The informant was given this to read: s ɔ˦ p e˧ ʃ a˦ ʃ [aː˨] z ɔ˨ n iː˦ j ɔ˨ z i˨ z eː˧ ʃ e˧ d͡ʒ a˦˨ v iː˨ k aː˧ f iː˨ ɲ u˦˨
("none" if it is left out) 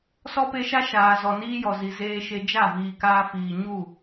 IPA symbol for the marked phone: aː˨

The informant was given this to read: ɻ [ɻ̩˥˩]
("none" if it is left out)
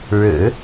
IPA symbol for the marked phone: ɻ̩˨˩˦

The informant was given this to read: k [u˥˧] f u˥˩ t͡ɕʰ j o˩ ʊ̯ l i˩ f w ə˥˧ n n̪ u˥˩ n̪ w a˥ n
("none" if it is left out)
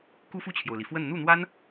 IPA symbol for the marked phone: u˥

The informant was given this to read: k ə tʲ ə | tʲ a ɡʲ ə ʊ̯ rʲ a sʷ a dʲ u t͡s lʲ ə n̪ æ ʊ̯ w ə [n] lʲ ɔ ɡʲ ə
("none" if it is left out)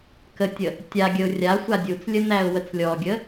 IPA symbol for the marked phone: t͡s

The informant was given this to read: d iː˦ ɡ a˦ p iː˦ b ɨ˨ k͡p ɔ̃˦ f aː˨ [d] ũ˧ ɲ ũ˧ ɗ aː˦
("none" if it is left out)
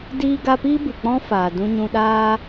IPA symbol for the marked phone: d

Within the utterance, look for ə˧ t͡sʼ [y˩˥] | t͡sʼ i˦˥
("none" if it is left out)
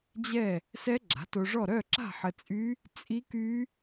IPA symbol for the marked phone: y˦˥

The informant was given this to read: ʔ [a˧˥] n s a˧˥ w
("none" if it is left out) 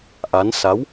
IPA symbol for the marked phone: a˧˥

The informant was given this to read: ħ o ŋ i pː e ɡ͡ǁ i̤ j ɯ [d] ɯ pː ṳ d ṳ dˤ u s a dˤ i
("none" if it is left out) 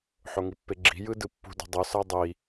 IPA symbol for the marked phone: d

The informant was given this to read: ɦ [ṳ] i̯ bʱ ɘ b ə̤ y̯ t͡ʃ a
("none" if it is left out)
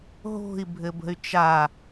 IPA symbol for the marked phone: o̤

